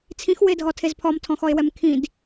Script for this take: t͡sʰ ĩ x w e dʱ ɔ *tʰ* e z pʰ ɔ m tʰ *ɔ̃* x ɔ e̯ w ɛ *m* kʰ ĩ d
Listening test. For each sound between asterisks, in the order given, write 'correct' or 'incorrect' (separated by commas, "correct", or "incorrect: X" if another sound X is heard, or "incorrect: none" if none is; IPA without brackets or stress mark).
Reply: correct, correct, correct